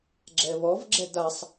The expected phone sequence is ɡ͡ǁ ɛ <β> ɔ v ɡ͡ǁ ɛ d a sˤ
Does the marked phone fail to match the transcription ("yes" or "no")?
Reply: no